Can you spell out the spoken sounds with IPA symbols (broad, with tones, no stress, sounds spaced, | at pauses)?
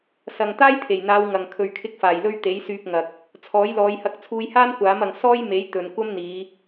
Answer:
s ɐ˨ ŋ t̪ aː˥ j t̪ʰ e˨˩ j n̪ aː˨˧ w ŋ ɐ˨ ŋ kʰ ɵ˨ ɥ kʰ ɪ˧ k̚ f aː˨˩ j l ɵ˧ ɥ t̪ e˨˥ j s yː˧ p̚ ŋ ɐ˨ k̚ | t͡sʰ ɔː˨˥ j l ɔː˨˧ j h ɐ˧ k̚ t͡sʰ uː˧ j h aː˥ n kʷ aː˨˥ m ɐ˨ ŋ s ɔː˥ j m e˨˥ j t̪ ɵ˨ n kʷ ɐ˥ m n̪ iː˨˧